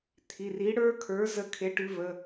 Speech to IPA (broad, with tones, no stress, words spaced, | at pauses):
t̪ʰi˩˧˩ri˨˥ ɽə˞˦˥kʰə˞˨˥ zə˦˥kʰe˨˥ʈʉ˨˥ və˩˧˩